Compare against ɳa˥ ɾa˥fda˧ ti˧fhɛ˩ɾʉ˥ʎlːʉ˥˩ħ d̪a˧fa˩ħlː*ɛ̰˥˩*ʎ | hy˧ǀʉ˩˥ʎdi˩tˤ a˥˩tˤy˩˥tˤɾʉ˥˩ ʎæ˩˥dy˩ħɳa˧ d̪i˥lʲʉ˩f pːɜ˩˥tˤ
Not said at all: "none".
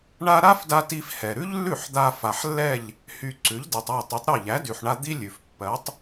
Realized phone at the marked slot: ɛ˥˩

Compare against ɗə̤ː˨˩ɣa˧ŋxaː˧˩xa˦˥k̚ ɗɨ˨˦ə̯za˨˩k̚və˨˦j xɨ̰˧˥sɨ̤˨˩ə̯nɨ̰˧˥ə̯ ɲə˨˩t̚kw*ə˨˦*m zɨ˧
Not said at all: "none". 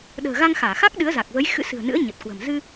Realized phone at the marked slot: ə̤˨˩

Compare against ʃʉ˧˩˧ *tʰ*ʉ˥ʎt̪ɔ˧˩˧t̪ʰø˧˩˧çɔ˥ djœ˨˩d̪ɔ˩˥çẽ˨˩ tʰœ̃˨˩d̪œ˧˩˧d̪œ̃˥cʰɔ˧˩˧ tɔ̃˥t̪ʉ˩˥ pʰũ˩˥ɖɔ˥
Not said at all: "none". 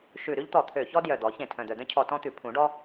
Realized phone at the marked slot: ɾ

